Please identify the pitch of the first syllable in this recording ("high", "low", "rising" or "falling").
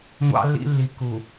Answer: high